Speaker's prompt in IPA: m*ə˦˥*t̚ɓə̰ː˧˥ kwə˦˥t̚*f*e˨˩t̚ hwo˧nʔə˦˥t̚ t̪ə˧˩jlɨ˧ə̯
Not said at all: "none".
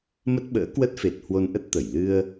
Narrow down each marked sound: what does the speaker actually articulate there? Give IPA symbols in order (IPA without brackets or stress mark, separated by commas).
ə˦˥, f